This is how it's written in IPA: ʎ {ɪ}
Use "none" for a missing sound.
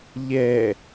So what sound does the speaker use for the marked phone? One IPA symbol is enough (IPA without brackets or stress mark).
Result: ɛ